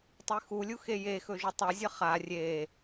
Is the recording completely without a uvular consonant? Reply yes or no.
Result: no